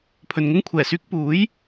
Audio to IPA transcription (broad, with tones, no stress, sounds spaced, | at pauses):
pʰ ɵ˨ n ŋ ʊ˥ ŋ kʷʰ ɛː˨˩ s yː˥ k̚ p uː˨˥ j